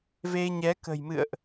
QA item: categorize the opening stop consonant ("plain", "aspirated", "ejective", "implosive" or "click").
plain